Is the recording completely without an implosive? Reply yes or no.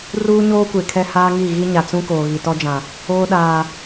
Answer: no